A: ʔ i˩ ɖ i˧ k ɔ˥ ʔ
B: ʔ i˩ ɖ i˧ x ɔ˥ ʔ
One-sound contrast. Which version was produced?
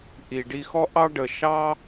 B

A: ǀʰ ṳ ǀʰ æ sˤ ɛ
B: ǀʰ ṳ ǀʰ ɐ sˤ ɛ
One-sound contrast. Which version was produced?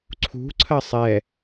B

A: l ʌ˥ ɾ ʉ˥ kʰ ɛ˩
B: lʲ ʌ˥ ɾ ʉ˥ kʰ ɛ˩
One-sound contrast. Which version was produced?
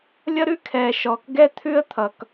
B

